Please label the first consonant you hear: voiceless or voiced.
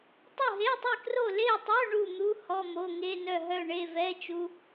voiceless